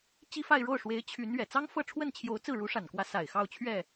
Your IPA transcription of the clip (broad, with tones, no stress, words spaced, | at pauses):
t͡ɕi˥˧fa˥˧ɪ̯ɻo˥˩ʊ̯ʂwe˧˥ɪ̯ t͡ɕʰy˧˥n ɥɛ˨˩ t͡sɑ˥ŋfɤ˥˧ʈ͡ʂʰwə˥˩nt͡ɕʰjo˧˥ʊ̯ t͡sɹ̩˥˩ɻu˧˥ʂa˨˩nkwä˧˥ sa˨˩ɪ̯ xɑ˥˧ʊ̯t͡ɕʰɥɛ˥˩